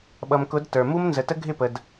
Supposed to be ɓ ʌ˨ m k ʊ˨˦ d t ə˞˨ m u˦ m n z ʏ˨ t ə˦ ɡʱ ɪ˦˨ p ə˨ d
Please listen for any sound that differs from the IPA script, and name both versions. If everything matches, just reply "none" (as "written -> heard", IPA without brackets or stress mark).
ʏ˨ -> ə˨